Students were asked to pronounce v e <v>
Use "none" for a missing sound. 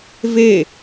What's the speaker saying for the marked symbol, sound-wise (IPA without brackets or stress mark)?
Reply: none